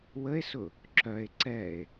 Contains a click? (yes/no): yes